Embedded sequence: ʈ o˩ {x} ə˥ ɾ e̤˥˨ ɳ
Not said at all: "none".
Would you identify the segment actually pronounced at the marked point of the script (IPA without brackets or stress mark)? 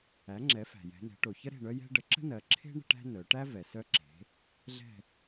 ç